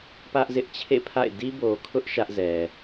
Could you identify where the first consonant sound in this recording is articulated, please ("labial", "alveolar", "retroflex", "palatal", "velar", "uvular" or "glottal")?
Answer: labial